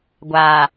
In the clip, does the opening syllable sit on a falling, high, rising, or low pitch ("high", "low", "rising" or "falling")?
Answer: low